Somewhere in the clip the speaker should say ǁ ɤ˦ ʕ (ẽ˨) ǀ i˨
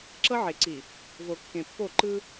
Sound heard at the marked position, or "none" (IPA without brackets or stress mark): e˨